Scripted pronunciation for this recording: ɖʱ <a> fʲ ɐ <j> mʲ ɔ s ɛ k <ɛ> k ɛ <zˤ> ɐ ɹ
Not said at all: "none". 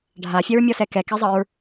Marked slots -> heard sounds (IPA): a, ɹ, ɛ, zˤ

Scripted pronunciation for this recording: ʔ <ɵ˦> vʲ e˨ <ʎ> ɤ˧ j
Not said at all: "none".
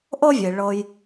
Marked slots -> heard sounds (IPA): ɤ˦, ɭ

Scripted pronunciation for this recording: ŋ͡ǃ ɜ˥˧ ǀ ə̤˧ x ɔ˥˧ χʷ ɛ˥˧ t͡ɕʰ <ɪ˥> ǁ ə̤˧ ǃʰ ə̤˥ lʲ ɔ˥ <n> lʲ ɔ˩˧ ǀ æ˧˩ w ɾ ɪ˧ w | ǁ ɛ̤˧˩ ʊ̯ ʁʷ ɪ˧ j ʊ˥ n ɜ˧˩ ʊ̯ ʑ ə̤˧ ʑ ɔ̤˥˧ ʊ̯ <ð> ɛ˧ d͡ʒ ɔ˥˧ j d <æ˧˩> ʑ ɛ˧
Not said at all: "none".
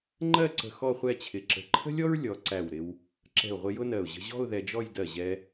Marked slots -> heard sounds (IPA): ɪ˧˩, ɹ, ð, ɜ˧˩

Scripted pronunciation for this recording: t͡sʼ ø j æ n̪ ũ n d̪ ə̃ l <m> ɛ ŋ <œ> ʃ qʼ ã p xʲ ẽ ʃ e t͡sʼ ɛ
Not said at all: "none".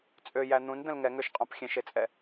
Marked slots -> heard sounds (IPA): ŋ, ø

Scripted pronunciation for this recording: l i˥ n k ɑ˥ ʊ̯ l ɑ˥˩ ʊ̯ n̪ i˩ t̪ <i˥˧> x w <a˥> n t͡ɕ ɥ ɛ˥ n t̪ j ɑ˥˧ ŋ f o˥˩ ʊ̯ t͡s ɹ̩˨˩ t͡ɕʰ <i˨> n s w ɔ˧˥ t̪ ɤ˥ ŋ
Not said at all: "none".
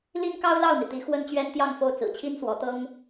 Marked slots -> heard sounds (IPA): i˧˥, ə˥, i˥

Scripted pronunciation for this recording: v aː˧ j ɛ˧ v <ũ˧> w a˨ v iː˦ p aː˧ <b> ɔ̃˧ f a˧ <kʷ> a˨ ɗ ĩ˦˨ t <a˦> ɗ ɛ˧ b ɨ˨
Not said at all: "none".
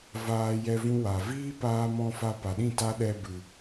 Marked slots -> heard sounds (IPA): ũ˦, m, p, a˦

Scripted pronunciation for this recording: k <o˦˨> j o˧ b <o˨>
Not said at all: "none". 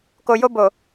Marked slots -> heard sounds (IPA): o˨, o˨

